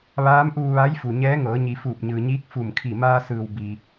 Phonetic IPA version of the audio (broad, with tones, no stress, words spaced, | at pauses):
ʋaː˧˥mʔuː˧ʋa˧˥j fu˩ɲɛː˧˥ŋɤː˩˧ɲi˩˧ fuː˧˩p̚ɲɯː˩ɲiː˧˥k̚ fu˧˩mkʰi˧˩ maː˧sɯː˩w bi˩